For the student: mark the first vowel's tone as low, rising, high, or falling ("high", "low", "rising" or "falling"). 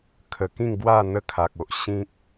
low